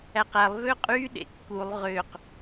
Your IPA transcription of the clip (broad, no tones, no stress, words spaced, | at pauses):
æqælˠ vøqʼy ɗḛkːulˠ ʁøq